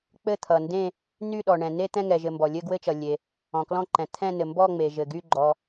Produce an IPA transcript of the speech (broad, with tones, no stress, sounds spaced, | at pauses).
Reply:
k͡p ɘ˦˨ t̪ʰ ʌ˩ n d ẽ˦˨ | n y˦˨ ɗ ɔ˩ ɳ ɛ̃˩ n e˦˨ t̪ ɛ̃˦˨ ŋ ɛ˩ ʒ ɘ˩ m b ɔ˩ lʲ ɘ˦˨ ɡ w ɘ˦˨ t͡ʃ ʌ˩ lʲ e˩ | ɔ̃˩ k l ɔ̃˦˨ ǃ ɛ̃˩ t̪ʰ ɛ̃˦˨ n ɘ˩ m b ɔ˦˨ ŋ͡m e˩ ʒ ɘ˩ ɡ y˦˨ ɡ͡ǃ ɔ˩